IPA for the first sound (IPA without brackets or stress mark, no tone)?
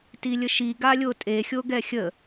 t